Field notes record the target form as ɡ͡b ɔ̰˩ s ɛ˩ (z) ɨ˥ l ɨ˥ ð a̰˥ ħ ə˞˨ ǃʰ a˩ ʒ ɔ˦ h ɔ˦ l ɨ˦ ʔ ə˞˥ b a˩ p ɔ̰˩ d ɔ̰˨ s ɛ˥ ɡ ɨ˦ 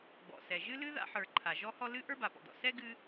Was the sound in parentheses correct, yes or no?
no